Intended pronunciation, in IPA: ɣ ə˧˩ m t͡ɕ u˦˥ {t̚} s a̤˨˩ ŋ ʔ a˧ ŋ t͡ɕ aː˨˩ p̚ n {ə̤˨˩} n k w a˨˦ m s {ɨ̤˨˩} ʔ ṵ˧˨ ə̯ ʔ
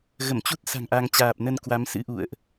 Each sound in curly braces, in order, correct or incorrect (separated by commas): correct, incorrect, incorrect